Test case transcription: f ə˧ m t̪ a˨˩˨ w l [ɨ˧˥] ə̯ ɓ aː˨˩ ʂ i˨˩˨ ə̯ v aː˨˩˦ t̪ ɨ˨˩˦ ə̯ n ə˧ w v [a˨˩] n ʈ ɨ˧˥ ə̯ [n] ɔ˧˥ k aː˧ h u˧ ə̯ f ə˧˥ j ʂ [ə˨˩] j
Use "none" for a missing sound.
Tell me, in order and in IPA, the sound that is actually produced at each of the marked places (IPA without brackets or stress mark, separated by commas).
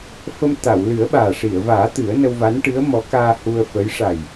ɨ˨˩˦, a˧˥, m, a˨˩